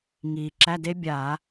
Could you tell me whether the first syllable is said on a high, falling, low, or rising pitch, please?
low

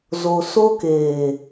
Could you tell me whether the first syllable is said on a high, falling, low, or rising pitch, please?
low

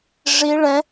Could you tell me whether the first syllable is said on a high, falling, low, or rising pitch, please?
high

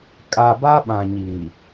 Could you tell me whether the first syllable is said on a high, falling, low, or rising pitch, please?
low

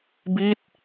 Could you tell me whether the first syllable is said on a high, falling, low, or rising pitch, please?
falling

